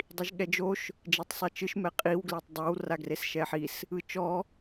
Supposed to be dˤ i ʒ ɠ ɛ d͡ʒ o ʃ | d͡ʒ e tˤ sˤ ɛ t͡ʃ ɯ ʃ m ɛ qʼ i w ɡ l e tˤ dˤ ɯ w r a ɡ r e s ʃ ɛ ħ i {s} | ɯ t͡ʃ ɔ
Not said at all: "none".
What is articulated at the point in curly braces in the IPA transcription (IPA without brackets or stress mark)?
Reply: s